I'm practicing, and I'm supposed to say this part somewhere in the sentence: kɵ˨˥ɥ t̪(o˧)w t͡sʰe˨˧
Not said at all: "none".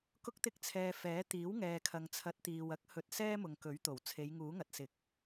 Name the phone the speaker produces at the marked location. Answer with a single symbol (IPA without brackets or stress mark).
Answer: o˨˩